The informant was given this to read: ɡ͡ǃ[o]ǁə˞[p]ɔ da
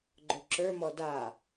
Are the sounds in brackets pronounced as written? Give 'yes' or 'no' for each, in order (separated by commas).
yes, no